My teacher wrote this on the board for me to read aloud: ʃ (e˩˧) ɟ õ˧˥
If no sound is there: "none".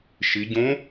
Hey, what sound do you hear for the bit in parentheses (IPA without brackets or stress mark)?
i˩˧